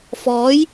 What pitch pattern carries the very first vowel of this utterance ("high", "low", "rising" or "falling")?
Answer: rising